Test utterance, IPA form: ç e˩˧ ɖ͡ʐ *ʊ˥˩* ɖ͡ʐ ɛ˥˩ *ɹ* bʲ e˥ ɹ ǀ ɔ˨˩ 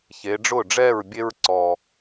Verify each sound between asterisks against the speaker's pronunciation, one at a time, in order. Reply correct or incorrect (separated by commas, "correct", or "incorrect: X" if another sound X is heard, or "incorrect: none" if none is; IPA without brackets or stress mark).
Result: correct, correct